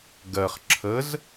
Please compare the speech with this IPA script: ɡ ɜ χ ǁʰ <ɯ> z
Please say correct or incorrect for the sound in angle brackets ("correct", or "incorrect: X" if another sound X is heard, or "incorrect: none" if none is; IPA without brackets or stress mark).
incorrect: ə